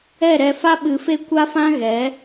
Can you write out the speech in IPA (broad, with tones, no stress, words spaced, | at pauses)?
ɛ˦˨ɾɛ˧fa˦ ɓɨ˧fe˦ kʷa˦fã˦ɣɛ˨˦